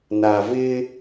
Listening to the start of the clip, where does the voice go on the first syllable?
low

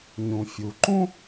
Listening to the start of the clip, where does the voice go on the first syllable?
low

